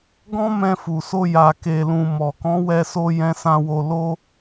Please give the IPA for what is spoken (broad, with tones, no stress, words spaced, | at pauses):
ɡɔ̃˦mɛ̃˧fu˨so˧ ja˨ke˨lũ˨ mɔ˨kɔ̃˨˦wɛ˧so˧ jɛ̃˧sã˧wo˧ lo˦